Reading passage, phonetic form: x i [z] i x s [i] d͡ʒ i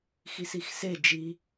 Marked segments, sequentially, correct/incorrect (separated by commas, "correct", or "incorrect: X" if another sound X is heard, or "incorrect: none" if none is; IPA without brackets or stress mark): incorrect: s, incorrect: e